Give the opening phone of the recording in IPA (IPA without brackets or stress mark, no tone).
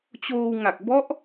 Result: t͡ɕ